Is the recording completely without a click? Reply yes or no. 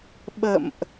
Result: yes